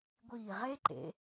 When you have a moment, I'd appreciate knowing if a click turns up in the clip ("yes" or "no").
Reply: yes